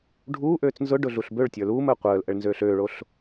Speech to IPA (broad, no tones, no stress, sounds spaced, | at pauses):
ɖʱ uː ʔ øː t͡s n z ʊ ɖ ʊ ɮ u ɬ b ø ɭ tʲ ə˞ l uː m əː qʷ əː l ʔ ə ɭ n z øː ɬ øː ɭ o ɬ